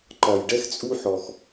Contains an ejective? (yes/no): yes